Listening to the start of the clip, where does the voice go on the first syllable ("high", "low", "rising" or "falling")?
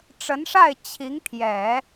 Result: rising